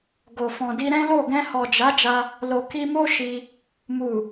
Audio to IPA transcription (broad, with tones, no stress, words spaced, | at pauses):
ɡo˨ fɔ̃˨di˧ɾɛ̃˦lo˦˨ ɡɛ̃˧hɔ˨d͡ʒa˨˦ d͡ʒa˧ | lo˨ki˧mo˦ ʃi˧ | mu˨